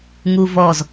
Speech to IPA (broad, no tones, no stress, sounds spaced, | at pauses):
ŋ u v ɔ z